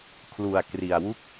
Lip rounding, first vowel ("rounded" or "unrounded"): rounded